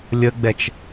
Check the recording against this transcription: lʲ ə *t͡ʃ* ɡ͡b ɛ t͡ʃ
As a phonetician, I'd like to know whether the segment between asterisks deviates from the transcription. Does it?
yes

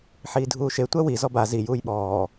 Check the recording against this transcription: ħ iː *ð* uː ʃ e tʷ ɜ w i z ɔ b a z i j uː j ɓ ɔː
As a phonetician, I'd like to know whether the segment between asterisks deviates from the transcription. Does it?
yes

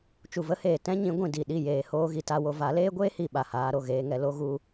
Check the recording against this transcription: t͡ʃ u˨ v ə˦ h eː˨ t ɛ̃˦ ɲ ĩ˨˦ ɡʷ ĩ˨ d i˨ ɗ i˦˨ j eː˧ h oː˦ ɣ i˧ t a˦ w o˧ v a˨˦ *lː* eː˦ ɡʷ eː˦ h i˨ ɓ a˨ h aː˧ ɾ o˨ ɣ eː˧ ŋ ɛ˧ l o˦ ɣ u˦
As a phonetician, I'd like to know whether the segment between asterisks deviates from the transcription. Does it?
yes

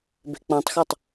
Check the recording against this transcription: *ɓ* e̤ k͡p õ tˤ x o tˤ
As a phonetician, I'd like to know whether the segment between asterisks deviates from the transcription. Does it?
yes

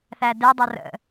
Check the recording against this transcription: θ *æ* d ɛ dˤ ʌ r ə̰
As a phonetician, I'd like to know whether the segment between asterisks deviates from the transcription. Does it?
no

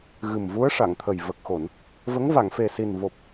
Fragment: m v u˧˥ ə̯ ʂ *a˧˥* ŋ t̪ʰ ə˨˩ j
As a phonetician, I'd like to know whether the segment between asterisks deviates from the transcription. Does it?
yes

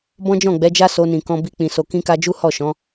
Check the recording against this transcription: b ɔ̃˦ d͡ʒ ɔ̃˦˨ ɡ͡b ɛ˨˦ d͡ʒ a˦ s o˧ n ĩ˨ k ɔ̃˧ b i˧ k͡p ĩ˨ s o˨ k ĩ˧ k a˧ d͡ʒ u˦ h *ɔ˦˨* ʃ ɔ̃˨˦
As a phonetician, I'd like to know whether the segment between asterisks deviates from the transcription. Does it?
no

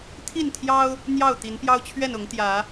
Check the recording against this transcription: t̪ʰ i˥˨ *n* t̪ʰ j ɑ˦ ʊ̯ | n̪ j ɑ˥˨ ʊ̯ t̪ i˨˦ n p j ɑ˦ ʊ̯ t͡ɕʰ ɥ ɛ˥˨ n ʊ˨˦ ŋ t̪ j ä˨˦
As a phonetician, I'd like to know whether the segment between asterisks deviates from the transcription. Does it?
no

